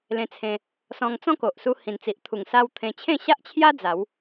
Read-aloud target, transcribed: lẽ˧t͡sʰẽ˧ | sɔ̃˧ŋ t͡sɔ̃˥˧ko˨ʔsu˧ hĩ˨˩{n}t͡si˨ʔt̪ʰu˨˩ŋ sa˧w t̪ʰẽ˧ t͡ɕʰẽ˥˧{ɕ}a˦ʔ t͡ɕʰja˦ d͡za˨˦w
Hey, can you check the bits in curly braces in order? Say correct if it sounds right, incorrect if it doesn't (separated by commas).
correct, correct